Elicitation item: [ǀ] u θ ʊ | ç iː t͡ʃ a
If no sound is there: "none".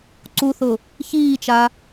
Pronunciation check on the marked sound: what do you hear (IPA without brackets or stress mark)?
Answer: ǀ